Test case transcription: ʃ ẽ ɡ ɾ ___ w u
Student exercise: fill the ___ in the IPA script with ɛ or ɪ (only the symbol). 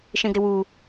ɪ